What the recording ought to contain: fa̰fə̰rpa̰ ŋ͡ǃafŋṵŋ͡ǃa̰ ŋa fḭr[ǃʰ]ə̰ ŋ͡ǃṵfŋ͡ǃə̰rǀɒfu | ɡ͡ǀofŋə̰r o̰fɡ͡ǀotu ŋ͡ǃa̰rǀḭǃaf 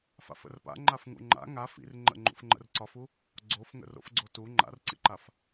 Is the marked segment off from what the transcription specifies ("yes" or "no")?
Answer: yes